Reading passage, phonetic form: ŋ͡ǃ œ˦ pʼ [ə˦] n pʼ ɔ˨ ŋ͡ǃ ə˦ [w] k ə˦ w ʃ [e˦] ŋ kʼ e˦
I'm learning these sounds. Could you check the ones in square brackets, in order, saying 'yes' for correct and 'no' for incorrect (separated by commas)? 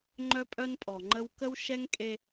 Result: no, yes, no